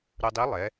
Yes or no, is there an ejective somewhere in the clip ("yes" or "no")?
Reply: no